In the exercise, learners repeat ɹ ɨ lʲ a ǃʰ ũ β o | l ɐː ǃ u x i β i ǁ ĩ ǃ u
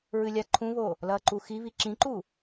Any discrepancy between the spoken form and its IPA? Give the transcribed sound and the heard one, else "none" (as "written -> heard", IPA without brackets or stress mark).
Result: none